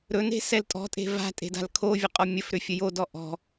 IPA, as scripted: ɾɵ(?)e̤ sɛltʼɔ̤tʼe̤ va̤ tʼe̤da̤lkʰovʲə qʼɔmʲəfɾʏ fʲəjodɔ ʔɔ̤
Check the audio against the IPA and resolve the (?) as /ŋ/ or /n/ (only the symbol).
n